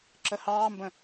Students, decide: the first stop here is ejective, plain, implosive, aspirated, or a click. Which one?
click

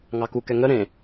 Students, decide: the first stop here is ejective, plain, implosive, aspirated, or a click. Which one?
plain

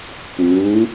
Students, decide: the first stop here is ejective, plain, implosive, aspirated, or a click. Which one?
plain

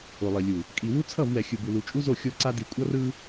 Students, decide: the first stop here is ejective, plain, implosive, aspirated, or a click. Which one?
ejective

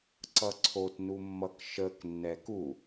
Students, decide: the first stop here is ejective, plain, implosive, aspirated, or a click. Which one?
click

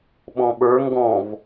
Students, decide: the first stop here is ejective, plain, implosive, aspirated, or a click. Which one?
implosive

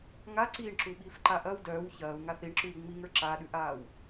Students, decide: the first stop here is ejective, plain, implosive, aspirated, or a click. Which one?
click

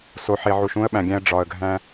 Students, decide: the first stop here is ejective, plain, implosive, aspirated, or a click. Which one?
implosive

